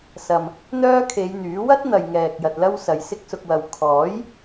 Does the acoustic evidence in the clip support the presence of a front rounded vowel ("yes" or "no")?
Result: yes